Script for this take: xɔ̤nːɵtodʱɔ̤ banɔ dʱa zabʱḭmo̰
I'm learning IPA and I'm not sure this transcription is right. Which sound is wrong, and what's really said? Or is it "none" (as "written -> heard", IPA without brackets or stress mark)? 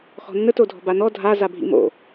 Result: ɵ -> ə